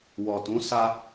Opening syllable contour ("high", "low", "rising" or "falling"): low